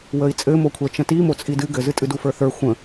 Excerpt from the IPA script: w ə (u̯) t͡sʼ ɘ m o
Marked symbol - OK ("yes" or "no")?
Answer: no